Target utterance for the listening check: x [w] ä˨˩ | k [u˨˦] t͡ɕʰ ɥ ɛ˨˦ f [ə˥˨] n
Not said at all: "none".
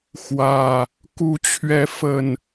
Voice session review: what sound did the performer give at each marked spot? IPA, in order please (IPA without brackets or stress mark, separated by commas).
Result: w, u˨˦, ə˨˩